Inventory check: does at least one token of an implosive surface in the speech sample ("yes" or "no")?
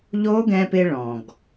no